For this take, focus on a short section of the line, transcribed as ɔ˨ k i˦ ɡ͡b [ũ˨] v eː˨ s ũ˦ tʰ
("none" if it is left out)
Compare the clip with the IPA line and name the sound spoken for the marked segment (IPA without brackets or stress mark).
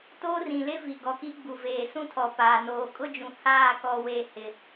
u˨